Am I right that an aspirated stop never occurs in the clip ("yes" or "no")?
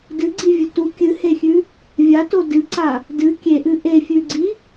yes